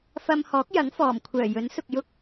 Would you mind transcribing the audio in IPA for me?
f ɐ˧ m h ɔː˨˥ k̚ j ɐ˨˥ ŋ f ɔː˨˩ m kʷʰ œː˨˩ j ɵ˨˥ n s ʊ˨ k̚ j ʊ˥ k̚

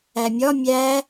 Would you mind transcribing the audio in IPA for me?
æ mʲ ɒ mʲ æ

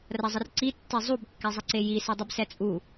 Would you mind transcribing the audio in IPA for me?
r ɐ zˤ ə r ǀ i tː e zˤ u b kː ɛ zˤ ə ǀ e j i s ɛ dˤ i b s ɛ t͡sʼ u

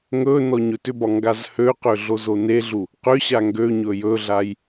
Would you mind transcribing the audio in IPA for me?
ŋ ɵ n ɔ ɲ ɵ t ʏ b ɒ ŋ ɡ a z h ø q ø ɮ o z o n e ɮ u | q ʏ ɕ a ŋ ɡ ø ɲ ɵ j ɵ ɮ a j

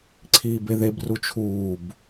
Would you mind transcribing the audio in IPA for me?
ǀʰ iː b e ð e b r u t͡ʃʰ uː b

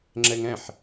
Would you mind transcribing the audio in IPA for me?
ŋ͡ǁ ɛ ŋ ɛ̃ ħ

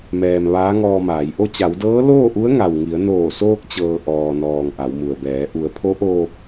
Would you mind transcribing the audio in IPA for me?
m ɛː˩ m ʋ aː˧˥ ŋ ɔː˧ m aː˩˧ j ʔ o˧ t͡ɕ a˩˧ w d ɤː˧˥ l oː˥˨ ʔ u˧˥ ə̯ ŋ a˩ w ŋ i˩˧ ə̯ n oː˧˩ s oː˧ k̚ t͡ɕ ɤː˩ ʔ ɔː˩ n ɔː˩ ŋ ʔ a˩˧ w m u˩ ə̯ b ɛː˩˧ ʔ u˩˧ ə̯ pʰ o˧˥ ʔ oː˧ p̚

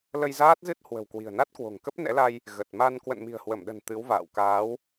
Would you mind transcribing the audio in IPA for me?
l ə˧ j z aː˦˥ t̚ z ɨ˦˥ t̚ h w ə̤˨˩ w k w i̤˨˩ ə̯ n a˦˥ t̚ k w o̤˨˩ ŋ k ə˦˥ p̚ n ɛ̰˧˥ l a˧ j | ɣ ə˨˩ t̚ m a˧ n k w ə̰˧˨ n m i̤˨˩ ə̯ h w ə˧˩ m ɗ ə̤˨˩ n t̪ ɨ˨˦ w v a̰ː˧˨ w k aː˨˦ w

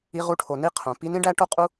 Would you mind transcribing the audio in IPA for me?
i˧ ʁ u˧ ʈʰ o˨ n i˦ qʰ õ˨ p i˦ n ĩ˦ ɖ æ˦ ʈ o˦ qʼ u˦

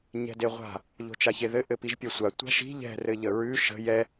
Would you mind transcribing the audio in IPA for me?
ɲ ɛ̤ d e ʁʷ a̤ | ʎ o̤ t͡ʃ a ç e ð ɘ ʔ ɘ p i ʒ pʲ a sʷ a tʷ a̤ ʃ i̤ ʎ ɛ̤ r ɘ ʎ ə ɹ ʉ ʃ ə̤ j ɛ

